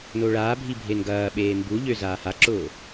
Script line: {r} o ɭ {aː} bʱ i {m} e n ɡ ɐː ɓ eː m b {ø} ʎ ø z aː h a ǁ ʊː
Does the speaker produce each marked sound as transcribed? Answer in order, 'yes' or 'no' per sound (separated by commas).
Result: no, yes, no, no